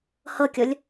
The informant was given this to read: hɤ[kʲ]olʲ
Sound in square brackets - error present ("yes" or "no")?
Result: no